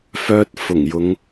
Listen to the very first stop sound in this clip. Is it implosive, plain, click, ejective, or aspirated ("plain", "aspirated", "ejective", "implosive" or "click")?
plain